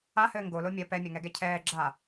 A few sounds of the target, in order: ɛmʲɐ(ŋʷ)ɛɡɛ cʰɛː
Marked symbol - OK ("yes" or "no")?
no